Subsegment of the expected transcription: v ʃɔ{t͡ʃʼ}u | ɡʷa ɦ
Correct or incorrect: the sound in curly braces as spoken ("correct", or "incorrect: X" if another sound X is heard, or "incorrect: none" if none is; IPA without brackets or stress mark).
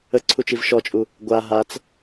correct